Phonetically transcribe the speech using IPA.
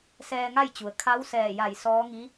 sɛː˧ŋa˥˨jt͡ɕu˩ə̯ kʰa˧˥wsɛː˧˩ja˧˩j sɔː˧˥ŋi˧˥

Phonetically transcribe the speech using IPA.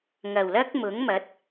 ŋɐ˨˩wlɐ˥k̚ mʊ˨˥ŋmɐ˨˥t̚

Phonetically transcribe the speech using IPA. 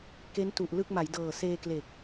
ke˦˥ntu˨˩ʔlɯ˥˩k̚ ma˩˦jdɤː˨˩ seː˧kle˨˩k̚

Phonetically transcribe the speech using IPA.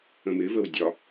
ə̃mɪvəw dʲɒ

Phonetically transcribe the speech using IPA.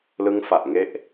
lɯ˦˥ŋfa˨˩ʔŋe˦˥ʔ

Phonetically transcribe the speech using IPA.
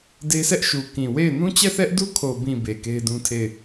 de˦sʰɛ˦ʔʃu˨ kĩ˨ we˦˨ɪ̯ nũ˦t͡ɕɛ˦˨θɛ˦ʔdu˦ kʰo˨bĩ˨ be˨ke˦ɪ̯dũ˦tʰe˦˨ɪ̯

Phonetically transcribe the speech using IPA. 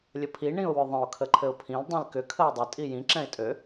lʲəpʰi ɳĩʊ̯wʏðˤə̃ʊ̯ kʰəǃʰɘʊ̯pʰĩl dˤĩlkʏ kʰəʊ̯dˤʏ tʼijĩ ǁɛ̃ɪ̯tʼø

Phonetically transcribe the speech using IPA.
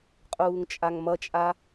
qʼuːŋt͡ʃʼaŋmʌt͡ʃʼa

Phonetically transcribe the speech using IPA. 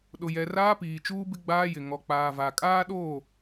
ɗʊ˨jɛ˨ raː˦piː˨t͡ʃuː˦bɪ˦ ɡ͡baː˦jɪ˨ ŋɔ˨k͡paː˨va˨ kʼaː˦ɗoː˦˨

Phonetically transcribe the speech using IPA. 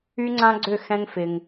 y˦ŋ͡ǀã˦ɡ͡ǀʏ˦˨ xɛ̃˦ŋfɪ˧ŋ

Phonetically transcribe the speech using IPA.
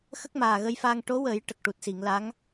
xə˦˥k̚maː˨˩ ɣə˧jfaː˧ŋ ʈo˧˥wə˨˩˦j ʈə˨˩k̚ʈu˨˩t̚si˨˩˨ŋla˧˥ŋ

